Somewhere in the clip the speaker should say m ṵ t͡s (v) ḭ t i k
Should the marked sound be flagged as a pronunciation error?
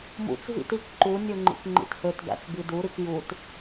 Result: no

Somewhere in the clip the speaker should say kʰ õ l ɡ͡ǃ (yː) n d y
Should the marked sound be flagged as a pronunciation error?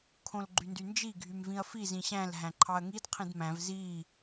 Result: yes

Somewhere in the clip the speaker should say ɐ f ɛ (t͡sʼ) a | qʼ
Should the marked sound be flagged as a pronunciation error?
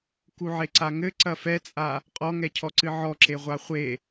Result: no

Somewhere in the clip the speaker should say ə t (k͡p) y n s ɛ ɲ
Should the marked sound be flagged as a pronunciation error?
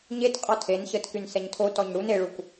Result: yes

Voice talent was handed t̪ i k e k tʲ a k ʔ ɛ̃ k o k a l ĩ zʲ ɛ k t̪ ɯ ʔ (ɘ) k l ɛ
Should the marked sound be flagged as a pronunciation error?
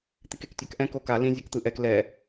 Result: yes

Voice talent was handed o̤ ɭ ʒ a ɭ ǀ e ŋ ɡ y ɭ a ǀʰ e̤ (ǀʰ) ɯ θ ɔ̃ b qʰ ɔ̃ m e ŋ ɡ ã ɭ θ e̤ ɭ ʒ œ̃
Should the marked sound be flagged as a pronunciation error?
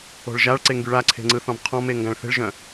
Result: yes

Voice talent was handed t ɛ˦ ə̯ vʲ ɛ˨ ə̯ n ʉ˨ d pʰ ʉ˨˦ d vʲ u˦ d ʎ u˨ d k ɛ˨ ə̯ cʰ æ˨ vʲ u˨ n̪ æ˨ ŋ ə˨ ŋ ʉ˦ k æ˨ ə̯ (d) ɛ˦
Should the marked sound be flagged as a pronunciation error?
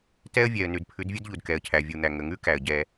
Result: yes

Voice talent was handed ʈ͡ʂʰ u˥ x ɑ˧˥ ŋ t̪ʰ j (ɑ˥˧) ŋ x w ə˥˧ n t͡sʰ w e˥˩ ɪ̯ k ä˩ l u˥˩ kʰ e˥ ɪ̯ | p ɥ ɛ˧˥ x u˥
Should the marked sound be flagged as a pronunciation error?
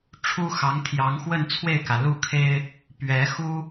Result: yes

